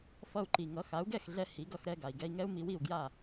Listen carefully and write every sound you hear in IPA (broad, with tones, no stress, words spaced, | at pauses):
fʌ˧u̯ǃi˩ŋʌ˩˥ xa˩˥u̯ɡɛ˥˩xɮɛ˧ hi˩˥ɡʌ˧xɾɛ˧ ɡa˩i̯ɡɛ˧i̯ŋɛ˥u̯ mi˧wi˥˩u̯ ɡja˥˩